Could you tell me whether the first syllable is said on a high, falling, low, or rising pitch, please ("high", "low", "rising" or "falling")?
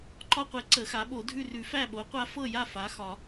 high